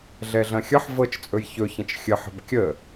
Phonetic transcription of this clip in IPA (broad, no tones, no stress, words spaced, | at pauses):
ɮɛɮɐ̃xʲʌħ vɤt͡ʃt͡sʼɵj çɵçə̃t͡ʃ xʲəħə̤b kʲə